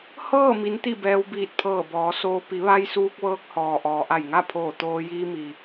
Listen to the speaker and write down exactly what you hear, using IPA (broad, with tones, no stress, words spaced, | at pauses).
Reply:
hɤː˥˨ mi˧˥nt̪i˥˨ bɛː˧wbiː˧˩t̚pʰɤː˧˩bɔː˩˧ soː˧ pi˩˧ʋa˧j suː˧k̚ʋɤː˧k̚hɔː˩ ʔɔː˩ʔa˧˩jŋa˥˨ pʰoː˧˩t̪oː˧ jiː˧mi˩